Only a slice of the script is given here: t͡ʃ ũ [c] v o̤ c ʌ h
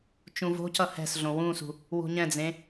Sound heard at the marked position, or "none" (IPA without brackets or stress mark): none